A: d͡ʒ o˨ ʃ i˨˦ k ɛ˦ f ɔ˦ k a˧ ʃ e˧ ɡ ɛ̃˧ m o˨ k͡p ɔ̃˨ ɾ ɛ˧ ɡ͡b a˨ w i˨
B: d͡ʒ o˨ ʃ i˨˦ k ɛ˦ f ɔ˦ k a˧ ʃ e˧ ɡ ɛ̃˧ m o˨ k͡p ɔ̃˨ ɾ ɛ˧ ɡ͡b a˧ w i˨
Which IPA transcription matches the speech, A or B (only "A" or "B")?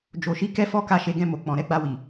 B